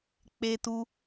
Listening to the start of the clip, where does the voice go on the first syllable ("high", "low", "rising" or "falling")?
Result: high